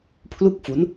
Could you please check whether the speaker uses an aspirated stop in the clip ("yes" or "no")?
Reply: yes